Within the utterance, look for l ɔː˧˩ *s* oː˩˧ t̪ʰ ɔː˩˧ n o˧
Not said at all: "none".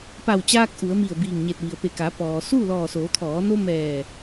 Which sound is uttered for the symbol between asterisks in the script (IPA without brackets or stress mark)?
s